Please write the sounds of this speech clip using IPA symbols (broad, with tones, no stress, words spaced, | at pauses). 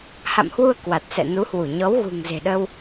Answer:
ha̰˧˨mhwu˧ə̯ kwa˨˩t̚ sɛ̰˧˨nu˨˦hwu˧˩ ɲɔ˨˦wɣṳ˨˩ŋze̤˨˩ɗəː˧w